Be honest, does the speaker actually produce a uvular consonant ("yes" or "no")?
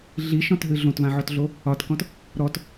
no